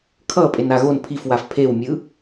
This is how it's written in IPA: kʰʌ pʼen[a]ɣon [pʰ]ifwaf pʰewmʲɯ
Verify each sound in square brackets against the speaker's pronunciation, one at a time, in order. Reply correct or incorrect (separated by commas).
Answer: correct, correct